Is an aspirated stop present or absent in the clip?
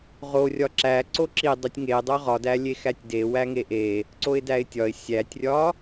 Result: absent